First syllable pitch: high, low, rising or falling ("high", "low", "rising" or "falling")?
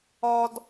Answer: high